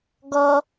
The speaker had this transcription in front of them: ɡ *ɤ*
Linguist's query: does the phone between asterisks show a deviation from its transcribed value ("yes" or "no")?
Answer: yes